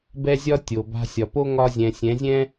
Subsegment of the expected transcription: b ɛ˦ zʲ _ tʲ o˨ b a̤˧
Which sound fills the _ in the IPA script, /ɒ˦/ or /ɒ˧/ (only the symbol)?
ɒ˦